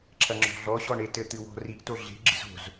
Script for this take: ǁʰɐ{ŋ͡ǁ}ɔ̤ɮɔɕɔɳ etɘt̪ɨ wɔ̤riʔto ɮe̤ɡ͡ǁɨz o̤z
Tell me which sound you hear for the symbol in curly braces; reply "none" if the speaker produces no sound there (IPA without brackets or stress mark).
ŋ͡ǁ